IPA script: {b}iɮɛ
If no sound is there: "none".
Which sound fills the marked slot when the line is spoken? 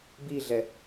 b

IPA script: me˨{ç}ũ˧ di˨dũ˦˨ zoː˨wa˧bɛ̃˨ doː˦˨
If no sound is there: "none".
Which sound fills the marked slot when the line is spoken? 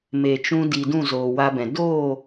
t͡ʃ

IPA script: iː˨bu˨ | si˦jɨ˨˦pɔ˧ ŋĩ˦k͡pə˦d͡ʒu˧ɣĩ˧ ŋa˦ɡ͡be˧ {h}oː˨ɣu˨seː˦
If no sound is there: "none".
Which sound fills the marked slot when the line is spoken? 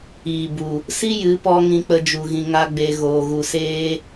ɣ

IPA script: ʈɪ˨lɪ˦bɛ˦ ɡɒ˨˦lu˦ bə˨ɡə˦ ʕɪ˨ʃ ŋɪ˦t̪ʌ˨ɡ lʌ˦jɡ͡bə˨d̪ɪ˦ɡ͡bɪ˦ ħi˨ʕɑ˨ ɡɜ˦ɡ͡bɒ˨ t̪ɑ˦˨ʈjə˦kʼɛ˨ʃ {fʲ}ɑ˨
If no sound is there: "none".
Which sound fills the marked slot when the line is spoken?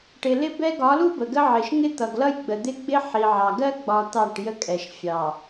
fʲ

